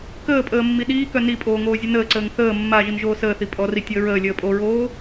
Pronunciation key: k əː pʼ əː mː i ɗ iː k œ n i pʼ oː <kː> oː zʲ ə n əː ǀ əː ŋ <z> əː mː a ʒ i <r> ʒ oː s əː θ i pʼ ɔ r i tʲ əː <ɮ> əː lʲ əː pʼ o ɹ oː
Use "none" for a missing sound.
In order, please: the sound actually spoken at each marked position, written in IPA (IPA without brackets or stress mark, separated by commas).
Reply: ŋ, θ, n, ɹ